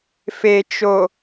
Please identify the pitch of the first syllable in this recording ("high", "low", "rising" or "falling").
low